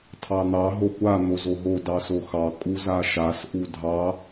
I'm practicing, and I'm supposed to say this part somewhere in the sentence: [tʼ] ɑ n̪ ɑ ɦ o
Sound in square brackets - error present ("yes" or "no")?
yes